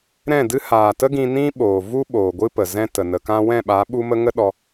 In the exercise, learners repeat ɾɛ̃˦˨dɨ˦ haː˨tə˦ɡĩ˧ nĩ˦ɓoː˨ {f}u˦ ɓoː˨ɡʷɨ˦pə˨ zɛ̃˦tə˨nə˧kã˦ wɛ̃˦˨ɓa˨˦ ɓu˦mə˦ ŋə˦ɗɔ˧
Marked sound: incorrect: v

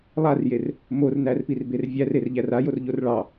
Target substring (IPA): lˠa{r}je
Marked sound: correct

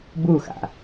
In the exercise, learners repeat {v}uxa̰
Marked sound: incorrect: b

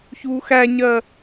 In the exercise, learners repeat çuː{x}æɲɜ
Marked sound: correct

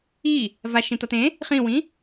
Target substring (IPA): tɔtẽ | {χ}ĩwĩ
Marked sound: correct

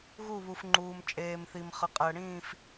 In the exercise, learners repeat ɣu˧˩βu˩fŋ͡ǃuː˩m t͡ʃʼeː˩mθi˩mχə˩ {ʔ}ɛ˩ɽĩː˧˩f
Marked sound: incorrect: qʼ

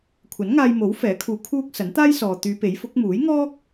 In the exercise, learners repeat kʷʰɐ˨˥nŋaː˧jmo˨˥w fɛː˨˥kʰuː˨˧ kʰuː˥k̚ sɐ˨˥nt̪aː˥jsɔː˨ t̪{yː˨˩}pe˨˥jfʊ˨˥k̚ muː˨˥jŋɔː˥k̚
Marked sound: incorrect: yː˨˧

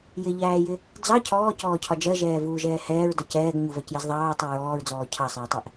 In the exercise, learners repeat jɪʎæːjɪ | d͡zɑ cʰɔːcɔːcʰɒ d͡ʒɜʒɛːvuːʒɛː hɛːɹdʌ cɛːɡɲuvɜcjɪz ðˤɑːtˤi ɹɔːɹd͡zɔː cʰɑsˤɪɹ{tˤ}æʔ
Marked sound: correct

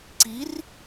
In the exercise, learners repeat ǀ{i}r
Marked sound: correct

